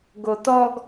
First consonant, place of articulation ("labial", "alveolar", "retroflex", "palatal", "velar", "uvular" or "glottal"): velar